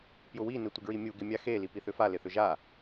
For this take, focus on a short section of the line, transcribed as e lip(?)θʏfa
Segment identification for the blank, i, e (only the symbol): i